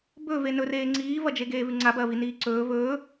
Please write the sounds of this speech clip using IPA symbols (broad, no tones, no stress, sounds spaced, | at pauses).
b ɵ v e n ɵ r eː ŋ͡ǀ iː v ɐ d͡ʒ e ɡ eː v ʉ ŋ͡ǀ a b ɐː v i n iː ǀ ɵː v ɵː